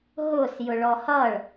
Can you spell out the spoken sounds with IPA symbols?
ɦ ʊ s j ʊ ɭ ɔ h ʌ ɭ

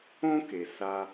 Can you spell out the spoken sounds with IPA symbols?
õ˦ k e˩ s a˨

